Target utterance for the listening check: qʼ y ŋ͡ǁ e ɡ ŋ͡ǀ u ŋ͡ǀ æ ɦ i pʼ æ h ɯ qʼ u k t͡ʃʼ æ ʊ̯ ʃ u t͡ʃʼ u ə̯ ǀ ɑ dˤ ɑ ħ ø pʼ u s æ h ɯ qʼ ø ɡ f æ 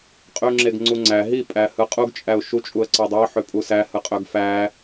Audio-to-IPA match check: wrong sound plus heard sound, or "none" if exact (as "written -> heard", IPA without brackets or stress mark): k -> ɡ